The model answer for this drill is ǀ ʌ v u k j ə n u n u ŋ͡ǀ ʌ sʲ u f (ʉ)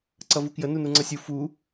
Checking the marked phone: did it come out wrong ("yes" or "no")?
yes